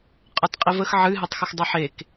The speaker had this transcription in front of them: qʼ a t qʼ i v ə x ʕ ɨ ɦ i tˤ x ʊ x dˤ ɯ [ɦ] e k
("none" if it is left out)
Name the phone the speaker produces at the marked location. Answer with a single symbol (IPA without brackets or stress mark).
ħ